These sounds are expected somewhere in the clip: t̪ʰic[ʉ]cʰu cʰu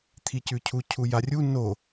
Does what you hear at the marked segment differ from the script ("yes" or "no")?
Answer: no